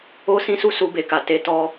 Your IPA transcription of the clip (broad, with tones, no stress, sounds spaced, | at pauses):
o˦ s ĩ˦ s u˦ s u˧ b e˨ k a˨ t e˧ t ɔ˦